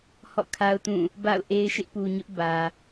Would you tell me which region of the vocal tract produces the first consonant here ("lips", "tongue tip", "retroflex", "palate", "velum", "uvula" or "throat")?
throat